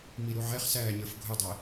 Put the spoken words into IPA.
miɾuʕɛχsæː ɲə˞fɡʱʊdˤæ

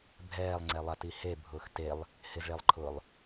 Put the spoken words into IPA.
bʱɛːlˠŋ͡ǀɛlˠati hebʱʊːx telˠ | hɪzɭelˠǃʰʊːlˠ

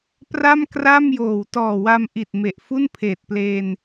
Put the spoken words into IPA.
pra˥˩m kra˥˩mjoː˨˩w tɔː˨˩wa˧mʔi˨˩t̚ me˨˩ʔfu˥˩n pʰeː˨˩t̚pleː˧n

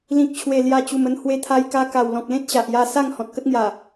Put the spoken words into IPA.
lĩ˨k̚t͡ɕʰwe˨˩ lja˧t͡ɕu˨˩mə˥˧n hwe˧t̪ʰa˧jka˧ka˨˩w lɔ̃˨k̚lẽ˦t̚ ɕa˨ʔja˥˧ sa˥˧ŋ hɔ̃˨t̚kə˦t̚ŋja˨˩

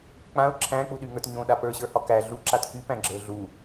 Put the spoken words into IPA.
k͡pãʊ̯ ǁʰæ̃k͡puɗyŋə˞t ɲõɗa pə˞ɕə˞hɒ kæ ɮuǁat kypæ̃ɡ͡ǁə˞ ɮu

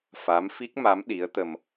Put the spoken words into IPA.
fa˧˥mfi˦˥k̚ma˧˥m ɗi˧˥ə̯t̪ə˧m

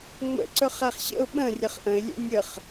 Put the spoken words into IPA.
ŋ͡mə̰ ǀɵχæχɕə̰ʊ̯ ɓə̃ rʲəχʔə̃ɪ̯lʲɛ̰ nʲəχ

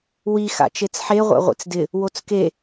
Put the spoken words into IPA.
wi xa̰t͡ʃet͡sħe ʁʷa̰ʁʷḛt͡sdɪ | wot͡ske

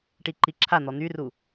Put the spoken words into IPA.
ʈiǃiǁʰan̪ɔ n̪yru

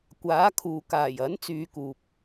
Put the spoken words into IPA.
kʷaː˨˥kʰuː˨ kaː˨˩jɐ˨˥nt͡syː˨ kuː˨p̚

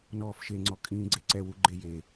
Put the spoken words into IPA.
nɔːfʃeŋ͡ǀɔkʼĩː ɡ͡ǀeǀɛwuɡ͡ǃe je

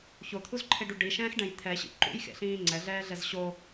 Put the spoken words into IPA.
çot̪ʰuzǃʰeɖu ɖiʃɛ̃ːxɖɛ̃j t̪ʰɛɕḭ ǃṵjxḛɬĩː ŋ͡ǀɛɮɛːɮɛz ɕo

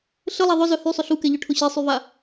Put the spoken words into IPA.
ɬəlˠa ðˤʊzœ hysˤʏ ɬukɛʎœʈʰʊ ɕesˤyva

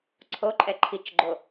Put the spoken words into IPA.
ǀʰoǃʼɛ ǃʰit͡ʃɡ͡ǃo

